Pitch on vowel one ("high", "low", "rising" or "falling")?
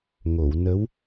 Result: low